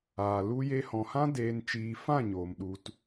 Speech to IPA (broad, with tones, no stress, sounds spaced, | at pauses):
aː˨ l u˧ j e˧ h ɔ̃˨ h ã˦ d eː˨ n t͡ʃ iː˨ f ã˦˨ ɲ oː˨ m ɗ u˧ t